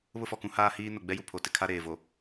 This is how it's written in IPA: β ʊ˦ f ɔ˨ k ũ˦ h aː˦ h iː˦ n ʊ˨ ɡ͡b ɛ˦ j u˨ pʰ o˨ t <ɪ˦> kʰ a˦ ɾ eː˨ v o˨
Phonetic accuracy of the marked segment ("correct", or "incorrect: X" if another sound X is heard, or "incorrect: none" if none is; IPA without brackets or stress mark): correct